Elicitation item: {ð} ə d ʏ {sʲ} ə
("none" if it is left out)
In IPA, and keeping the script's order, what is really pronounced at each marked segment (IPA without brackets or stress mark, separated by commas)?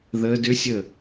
ð, sʲ